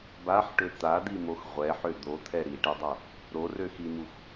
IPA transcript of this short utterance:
baħʈø t̪ad̪imox ʁʷɛħø d̪ot̪ʰɛ ɾiʈedˤo | ɾorøximux

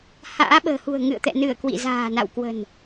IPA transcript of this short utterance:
ha̰ː˧˥ɓə̤ː˨˩hṳ˨˩ə̯ ŋɨ̰˧˨ə̯t̪ɛ̰˧˨nɨ˧˩ə̯ kwḭ˧˨za̤ː˨˩na̰˧˨wkwə̤˨˩n

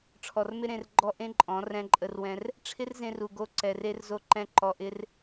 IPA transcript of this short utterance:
ʈ͡ʂʰɔ˨rmɪ˧ ɾẽ˧rɡ͡ǃɔ˦ ʔẽ˦ǃʼɔ̃˨˦ rɛ̃˧ǃʼə˧rwɛ̃˧r | ʈ͡ʂʰɪ˦rzẽ˧ru˨ ɡo˦ǀɛ˧re˦r zo˦ǃɛ̃˦ ǃɔ˧ʔɪ˦r

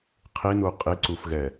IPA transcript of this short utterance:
qʰinu qʼiǀufɣɛ

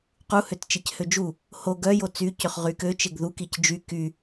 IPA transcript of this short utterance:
quhøtt͡ʃec hød͡ʒu | ho ɡœjo t͡sycøχ ʁykø t͡ʃeɡðukic d͡ʒy ky

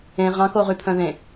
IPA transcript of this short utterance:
ẽ ʁɑ̃koʁypʰœ̃ ðẽ

